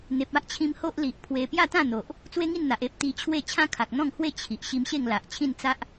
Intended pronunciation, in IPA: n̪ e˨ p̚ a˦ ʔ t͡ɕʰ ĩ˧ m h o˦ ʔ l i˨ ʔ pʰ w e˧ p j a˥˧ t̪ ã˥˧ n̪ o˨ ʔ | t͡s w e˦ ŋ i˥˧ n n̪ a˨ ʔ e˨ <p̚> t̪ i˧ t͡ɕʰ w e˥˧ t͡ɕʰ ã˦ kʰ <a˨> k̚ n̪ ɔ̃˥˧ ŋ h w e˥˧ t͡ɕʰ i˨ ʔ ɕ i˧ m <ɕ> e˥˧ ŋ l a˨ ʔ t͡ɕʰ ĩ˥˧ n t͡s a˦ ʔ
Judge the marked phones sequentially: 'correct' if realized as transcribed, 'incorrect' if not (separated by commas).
correct, correct, correct